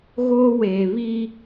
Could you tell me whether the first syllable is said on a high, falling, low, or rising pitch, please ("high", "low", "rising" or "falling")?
high